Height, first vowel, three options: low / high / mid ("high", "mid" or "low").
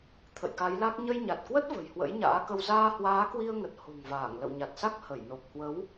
mid